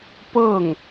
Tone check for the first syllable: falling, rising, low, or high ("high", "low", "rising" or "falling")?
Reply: falling